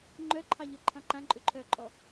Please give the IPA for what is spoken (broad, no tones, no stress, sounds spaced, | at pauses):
ŋ͡ǃ œ ǃʰ ɑ ʎ œ ǃʰ ɑ̃ ǃ ã ǃʼ ʏ ǃʰ œ ǃʼ ɔ